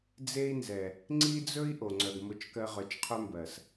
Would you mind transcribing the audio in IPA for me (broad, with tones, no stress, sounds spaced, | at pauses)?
d͡z e˦ i̯ n z ɛ˨ | ŋ͡ǀ i˦ d͡z ɵ˦ i̯ ʔ o˨ ŋ͡ǀ œ˨ ɡ m ʊ˦˨ t͡ʃ k ɜ˦ ʁ œ˨ t͡ʃ qʰ ɵ˦ m b ɜ˨ s